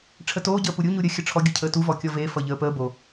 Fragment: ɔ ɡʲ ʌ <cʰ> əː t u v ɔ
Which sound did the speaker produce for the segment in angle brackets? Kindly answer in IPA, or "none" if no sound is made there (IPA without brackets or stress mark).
cʰ